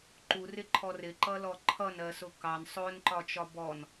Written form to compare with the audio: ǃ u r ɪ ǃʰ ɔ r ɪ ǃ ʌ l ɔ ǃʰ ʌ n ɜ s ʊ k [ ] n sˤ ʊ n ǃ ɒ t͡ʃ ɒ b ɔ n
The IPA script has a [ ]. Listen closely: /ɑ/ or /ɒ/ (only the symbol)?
ɑ